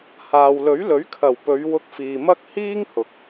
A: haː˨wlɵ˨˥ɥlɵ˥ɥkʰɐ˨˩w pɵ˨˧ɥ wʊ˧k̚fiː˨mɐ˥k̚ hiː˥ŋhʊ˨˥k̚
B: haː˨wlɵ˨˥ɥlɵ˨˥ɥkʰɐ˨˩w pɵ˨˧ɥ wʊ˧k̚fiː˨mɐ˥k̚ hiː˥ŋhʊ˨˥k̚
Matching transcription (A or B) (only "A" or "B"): B